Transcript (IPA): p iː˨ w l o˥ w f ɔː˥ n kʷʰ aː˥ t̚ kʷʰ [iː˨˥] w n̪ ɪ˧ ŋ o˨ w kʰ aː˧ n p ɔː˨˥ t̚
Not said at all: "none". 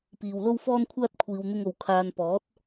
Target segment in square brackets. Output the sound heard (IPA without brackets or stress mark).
iː˨